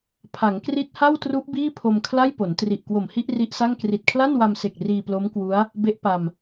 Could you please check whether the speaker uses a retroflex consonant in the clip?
no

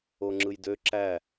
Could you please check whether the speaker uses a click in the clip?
yes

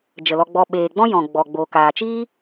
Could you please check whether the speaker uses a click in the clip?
no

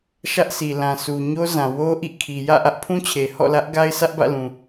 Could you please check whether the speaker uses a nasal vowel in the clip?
yes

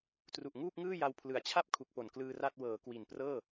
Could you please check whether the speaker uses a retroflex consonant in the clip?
no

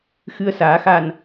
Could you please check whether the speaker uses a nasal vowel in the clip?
no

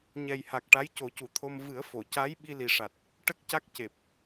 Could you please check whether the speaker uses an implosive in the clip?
yes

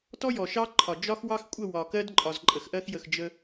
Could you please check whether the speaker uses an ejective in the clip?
yes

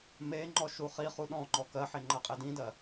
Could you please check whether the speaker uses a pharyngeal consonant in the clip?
yes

